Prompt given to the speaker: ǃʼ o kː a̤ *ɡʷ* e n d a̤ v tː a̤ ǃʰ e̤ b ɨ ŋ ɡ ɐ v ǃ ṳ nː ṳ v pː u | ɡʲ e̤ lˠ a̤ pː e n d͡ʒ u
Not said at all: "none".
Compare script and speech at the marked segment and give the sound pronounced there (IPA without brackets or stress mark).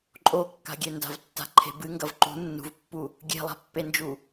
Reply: ɡʲ